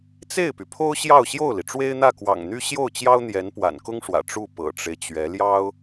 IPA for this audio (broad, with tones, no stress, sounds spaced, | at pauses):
t͡s e˥˩ ɪ̯ p y˩ pʰ o˥ ʊ̯ ɕ j ɑ˥˧ ʊ̯ ɕ j o˥˩ ʊ̯ l i˩ ʈ͡ʂ w e˥ ɪ̯ n̪ ä˥˩ k w ɑ̰˨˩ ŋ n̪ y˥ ɕ j o˥˩ ʊ̯ t͡ɕ j ɑ˥ ʊ̯ n̪ j ɛ˧˥ n p w a̰˨˩ n k ʊ˥ ŋ ʂ w ä̰˨˩ ʈ͡ʂ u˥˩ p ɤ̰˨˩ ʈ͡ʂ e˦ ɪ̯ t͡ɕ ɥ ɛ˧˥ l j ɑ˥ ʊ̯